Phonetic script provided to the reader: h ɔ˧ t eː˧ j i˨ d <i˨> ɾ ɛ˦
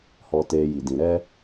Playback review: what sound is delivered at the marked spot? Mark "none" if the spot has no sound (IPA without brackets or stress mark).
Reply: ĩ˨